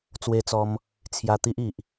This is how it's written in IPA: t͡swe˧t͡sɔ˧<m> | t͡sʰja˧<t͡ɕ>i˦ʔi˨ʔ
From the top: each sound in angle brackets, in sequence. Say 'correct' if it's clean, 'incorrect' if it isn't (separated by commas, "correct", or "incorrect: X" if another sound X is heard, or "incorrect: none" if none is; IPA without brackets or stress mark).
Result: correct, incorrect: t̪